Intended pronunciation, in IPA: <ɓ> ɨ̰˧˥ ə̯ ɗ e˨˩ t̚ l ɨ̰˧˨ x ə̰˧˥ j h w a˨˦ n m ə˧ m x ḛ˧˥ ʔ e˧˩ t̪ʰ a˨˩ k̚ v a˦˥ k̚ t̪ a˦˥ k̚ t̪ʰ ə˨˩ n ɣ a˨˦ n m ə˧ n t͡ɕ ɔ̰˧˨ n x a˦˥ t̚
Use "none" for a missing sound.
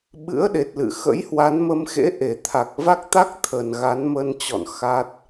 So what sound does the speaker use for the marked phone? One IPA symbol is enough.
ɓ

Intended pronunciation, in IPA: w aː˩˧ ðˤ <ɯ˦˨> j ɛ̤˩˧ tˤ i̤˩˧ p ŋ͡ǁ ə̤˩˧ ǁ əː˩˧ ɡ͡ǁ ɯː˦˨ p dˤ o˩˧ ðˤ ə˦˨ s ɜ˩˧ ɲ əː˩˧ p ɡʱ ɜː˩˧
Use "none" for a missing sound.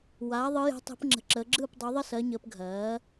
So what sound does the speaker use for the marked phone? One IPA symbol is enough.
ɯ˩˧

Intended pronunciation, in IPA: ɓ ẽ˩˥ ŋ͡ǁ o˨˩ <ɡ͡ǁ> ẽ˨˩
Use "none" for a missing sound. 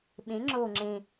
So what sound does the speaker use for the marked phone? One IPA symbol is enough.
ŋ͡ǁ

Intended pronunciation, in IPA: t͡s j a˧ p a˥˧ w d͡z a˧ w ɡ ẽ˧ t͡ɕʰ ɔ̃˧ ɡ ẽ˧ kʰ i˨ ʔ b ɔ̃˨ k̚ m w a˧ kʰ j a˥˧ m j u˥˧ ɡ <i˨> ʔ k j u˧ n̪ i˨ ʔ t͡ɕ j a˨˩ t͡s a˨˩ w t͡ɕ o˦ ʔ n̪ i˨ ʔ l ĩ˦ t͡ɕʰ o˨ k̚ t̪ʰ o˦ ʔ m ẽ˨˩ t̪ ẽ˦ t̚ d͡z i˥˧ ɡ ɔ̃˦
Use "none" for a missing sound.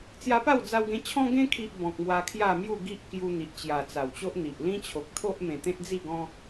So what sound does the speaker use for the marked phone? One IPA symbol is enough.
i˦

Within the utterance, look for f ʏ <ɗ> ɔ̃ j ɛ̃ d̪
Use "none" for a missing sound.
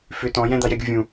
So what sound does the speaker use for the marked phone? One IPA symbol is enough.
t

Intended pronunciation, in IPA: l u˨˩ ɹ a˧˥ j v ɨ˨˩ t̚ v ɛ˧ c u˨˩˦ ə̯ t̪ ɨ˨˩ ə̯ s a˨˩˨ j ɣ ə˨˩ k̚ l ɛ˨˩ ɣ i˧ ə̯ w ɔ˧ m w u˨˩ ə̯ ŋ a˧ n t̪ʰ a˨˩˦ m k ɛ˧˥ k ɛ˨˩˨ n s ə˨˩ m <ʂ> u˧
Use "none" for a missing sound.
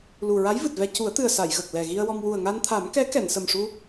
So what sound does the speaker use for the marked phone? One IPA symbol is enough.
ʂ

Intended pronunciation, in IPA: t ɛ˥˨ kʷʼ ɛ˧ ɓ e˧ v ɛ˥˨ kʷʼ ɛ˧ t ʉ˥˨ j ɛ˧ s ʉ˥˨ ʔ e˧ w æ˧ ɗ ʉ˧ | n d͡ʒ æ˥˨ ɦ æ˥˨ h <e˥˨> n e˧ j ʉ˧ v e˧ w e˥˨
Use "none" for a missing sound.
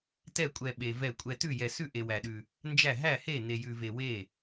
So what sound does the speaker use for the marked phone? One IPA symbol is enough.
e˥˨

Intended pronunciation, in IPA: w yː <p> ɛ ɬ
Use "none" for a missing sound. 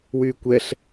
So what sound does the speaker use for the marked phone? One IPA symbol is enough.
kʷ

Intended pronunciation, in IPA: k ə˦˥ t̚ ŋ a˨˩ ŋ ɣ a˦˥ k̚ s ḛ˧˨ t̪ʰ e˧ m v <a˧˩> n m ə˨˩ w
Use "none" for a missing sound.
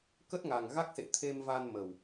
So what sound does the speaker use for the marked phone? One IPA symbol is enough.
a˧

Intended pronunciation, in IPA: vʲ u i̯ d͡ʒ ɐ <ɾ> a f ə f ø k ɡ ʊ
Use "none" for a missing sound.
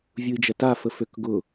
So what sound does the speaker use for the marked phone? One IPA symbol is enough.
t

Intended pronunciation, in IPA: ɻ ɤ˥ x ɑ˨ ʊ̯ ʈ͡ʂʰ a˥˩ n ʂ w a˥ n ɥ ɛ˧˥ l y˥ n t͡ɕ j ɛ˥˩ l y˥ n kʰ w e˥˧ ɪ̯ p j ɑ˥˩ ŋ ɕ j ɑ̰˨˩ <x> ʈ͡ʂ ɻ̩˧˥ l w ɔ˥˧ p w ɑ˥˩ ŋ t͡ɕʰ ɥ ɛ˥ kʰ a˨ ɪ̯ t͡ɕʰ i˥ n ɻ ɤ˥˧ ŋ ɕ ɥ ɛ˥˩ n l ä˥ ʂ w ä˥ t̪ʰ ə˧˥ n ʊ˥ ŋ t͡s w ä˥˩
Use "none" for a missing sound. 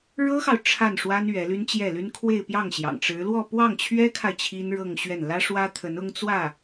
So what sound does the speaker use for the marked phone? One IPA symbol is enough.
ŋ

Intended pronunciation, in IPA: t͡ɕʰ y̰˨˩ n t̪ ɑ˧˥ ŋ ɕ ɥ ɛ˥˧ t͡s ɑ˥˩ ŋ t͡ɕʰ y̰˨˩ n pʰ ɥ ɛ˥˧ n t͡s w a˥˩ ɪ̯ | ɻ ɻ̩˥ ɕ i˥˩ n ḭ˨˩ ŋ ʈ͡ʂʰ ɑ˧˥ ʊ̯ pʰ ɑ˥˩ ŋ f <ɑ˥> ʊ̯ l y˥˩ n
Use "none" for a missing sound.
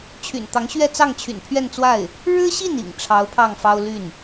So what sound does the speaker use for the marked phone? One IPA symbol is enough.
ɑ˥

